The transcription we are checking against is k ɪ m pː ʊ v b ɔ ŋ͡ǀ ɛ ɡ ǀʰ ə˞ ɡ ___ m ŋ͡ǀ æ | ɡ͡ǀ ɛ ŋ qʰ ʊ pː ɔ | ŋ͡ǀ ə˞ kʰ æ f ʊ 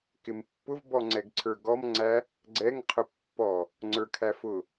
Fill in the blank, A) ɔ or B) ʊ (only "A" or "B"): A